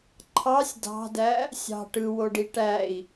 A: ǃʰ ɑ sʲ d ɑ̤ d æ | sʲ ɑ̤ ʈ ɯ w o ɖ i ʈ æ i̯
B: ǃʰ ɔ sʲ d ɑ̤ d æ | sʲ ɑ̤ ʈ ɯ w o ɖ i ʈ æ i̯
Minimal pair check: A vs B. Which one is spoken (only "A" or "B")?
A